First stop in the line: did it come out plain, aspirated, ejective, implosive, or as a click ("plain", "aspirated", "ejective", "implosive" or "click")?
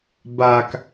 plain